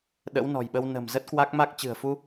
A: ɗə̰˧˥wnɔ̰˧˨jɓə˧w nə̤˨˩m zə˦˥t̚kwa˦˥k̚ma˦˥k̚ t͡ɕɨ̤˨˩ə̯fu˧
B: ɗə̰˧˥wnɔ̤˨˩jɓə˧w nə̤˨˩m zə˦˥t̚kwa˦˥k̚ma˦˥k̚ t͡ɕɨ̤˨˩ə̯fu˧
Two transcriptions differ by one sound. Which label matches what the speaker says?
B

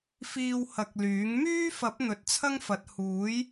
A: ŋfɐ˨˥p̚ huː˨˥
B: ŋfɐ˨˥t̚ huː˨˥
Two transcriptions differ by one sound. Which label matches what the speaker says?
B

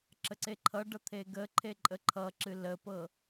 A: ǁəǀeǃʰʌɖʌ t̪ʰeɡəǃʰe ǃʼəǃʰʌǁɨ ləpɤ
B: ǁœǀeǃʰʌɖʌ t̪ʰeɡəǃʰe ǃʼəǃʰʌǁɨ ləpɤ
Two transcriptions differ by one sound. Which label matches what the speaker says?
A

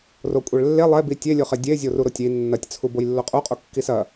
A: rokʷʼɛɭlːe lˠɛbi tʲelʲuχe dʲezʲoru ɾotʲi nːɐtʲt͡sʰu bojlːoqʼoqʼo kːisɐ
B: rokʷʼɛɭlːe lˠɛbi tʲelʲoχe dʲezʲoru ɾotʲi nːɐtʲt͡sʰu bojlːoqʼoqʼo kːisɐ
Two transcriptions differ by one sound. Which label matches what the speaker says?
B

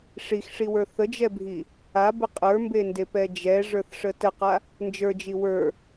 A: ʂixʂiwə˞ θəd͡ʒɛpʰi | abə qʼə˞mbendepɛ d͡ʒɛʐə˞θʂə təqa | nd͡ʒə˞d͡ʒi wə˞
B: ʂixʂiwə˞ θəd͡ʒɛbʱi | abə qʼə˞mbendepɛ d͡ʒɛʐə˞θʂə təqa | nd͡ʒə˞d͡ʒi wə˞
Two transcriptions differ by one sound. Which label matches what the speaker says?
B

